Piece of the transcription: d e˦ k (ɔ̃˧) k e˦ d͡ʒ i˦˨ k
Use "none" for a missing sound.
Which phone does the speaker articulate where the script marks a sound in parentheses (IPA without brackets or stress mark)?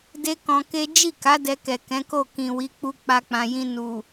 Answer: ɔ̃˧